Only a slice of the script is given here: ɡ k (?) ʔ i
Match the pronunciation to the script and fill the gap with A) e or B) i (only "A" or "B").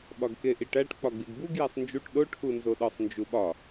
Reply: A